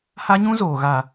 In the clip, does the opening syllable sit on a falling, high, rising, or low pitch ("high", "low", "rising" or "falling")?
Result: high